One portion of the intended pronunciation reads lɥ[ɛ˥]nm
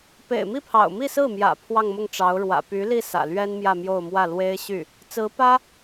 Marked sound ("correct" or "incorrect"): correct